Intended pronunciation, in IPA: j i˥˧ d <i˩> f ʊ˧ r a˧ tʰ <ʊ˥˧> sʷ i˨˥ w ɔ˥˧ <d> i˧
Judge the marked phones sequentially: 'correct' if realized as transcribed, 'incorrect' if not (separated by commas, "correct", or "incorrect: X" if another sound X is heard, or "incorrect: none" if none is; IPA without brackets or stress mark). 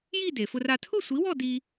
incorrect: e˩, correct, correct